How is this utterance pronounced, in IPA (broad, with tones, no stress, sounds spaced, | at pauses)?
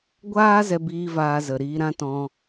ɡʷ aː˦ z ɛ˦ b iː˦ v aː˧ z ə˨ ɾ iː˧ ɾ ã˦ t ɔ̃˧